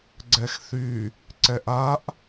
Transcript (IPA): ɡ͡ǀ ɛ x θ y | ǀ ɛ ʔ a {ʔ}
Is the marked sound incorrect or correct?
correct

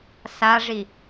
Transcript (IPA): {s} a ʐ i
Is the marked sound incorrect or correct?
correct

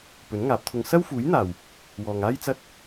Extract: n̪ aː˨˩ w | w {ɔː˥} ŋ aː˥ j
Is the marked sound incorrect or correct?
incorrect: ɔː˨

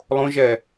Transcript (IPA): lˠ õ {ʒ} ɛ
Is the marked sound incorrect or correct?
correct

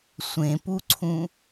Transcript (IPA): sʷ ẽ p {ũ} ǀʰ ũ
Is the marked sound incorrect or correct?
incorrect: u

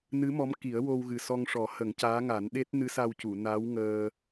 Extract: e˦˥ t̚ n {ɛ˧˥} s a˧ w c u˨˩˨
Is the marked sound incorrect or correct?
incorrect: ɨ˧˥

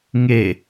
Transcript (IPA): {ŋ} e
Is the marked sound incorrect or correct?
correct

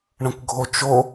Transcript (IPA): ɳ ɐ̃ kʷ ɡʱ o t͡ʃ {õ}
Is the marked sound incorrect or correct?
incorrect: o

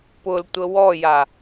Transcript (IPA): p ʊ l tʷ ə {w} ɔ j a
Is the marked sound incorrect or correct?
correct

